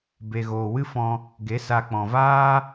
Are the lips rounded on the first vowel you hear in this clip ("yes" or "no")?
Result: no